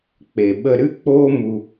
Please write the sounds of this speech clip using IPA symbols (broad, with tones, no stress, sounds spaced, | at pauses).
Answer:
k͡p e˨ ɓ ə˧ ɾ ɨ˦ k͡p oː˦ m u˧